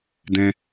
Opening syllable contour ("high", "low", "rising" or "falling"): high